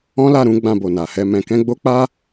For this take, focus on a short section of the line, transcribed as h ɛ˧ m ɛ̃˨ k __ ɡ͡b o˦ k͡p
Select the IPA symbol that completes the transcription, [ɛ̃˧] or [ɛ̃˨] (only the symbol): ɛ̃˧